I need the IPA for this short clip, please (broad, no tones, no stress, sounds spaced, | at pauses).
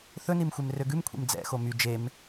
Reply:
θ ɵ n i m xʷ e m r ø ɡ ʉ m kʷʰ ḭ m d͡z ɛ̰ x o m y d͡ʒ e m